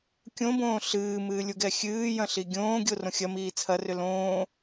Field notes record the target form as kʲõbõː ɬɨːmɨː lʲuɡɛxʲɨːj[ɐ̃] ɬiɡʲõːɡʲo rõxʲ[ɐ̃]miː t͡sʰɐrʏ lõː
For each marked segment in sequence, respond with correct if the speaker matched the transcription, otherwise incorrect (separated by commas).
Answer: correct, incorrect